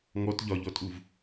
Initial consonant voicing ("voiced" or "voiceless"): voiced